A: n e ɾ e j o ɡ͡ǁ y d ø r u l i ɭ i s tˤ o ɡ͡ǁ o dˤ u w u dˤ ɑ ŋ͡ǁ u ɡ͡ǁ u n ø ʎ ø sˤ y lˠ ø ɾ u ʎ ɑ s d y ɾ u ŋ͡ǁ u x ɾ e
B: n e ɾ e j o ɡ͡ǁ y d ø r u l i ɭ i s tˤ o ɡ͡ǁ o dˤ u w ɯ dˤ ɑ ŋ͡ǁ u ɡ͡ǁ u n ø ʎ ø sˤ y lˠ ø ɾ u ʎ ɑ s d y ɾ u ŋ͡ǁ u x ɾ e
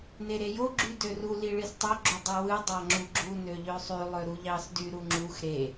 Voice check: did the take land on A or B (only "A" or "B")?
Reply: B